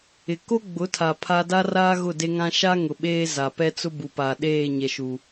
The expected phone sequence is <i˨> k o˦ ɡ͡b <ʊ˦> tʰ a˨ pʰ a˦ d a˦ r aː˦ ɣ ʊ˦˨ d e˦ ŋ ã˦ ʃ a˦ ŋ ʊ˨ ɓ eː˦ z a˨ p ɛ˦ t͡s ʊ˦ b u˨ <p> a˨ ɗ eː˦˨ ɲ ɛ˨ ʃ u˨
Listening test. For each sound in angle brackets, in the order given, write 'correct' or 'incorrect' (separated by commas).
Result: incorrect, incorrect, correct